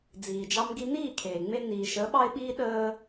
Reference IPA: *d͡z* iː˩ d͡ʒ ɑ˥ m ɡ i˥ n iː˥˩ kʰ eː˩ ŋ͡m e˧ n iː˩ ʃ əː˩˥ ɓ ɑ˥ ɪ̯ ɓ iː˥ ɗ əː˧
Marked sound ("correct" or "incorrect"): correct